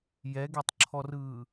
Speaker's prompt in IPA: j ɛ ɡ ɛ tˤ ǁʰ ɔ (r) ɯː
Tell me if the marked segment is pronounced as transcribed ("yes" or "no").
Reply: yes